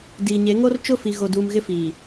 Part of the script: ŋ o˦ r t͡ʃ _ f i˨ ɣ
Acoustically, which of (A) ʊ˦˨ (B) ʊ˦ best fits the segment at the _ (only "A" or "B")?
A